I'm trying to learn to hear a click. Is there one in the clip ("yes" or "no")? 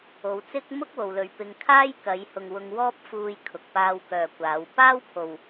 no